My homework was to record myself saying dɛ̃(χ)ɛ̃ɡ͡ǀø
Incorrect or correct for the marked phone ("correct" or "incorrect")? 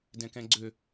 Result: incorrect